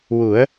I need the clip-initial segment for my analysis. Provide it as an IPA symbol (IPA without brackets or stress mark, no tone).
w